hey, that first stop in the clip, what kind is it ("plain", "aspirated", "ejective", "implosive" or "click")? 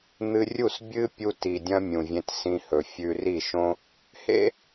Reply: plain